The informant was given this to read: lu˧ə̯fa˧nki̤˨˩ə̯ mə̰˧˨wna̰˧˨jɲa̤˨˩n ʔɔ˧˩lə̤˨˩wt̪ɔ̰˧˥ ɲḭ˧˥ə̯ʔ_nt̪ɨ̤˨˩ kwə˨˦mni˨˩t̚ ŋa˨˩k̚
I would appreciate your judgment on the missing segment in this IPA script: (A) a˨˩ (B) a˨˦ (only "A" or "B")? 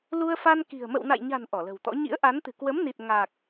B